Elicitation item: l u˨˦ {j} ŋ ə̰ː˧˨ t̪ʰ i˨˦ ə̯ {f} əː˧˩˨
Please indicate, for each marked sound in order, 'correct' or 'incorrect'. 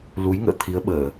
correct, incorrect: ɓ

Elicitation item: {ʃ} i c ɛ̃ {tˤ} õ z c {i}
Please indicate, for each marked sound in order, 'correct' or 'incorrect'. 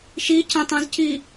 correct, correct, correct

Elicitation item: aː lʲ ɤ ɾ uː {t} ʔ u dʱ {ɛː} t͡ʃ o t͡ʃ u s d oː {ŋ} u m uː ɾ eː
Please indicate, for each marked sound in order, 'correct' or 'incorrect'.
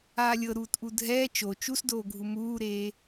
correct, correct, incorrect: ɡʱ

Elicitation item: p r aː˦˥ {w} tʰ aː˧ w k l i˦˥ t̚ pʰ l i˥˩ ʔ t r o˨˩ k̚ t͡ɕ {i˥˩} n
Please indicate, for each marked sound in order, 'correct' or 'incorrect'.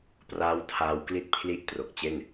correct, incorrect: e˥˩

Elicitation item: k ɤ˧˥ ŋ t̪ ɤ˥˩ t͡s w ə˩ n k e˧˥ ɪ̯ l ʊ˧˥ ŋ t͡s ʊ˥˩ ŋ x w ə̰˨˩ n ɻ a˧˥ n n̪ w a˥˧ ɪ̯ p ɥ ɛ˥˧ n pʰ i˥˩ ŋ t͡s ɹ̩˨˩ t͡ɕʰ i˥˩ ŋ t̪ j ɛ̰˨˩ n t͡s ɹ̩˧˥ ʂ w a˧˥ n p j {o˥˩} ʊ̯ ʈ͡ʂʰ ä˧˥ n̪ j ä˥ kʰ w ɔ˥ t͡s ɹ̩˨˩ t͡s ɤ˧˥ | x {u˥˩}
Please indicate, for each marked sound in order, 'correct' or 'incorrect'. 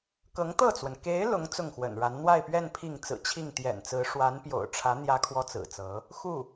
incorrect: o̰˨˩, correct

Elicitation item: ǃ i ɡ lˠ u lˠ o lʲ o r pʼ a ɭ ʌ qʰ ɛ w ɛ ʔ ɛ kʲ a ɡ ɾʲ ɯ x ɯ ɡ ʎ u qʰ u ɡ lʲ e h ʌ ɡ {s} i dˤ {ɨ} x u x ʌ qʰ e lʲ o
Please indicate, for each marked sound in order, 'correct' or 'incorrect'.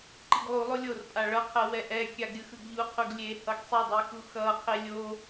incorrect: sˤ, incorrect: i

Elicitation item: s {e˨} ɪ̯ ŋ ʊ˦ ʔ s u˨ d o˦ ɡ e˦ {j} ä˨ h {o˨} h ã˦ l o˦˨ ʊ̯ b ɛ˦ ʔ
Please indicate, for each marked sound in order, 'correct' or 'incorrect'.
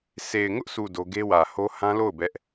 correct, incorrect: w, incorrect: o˦

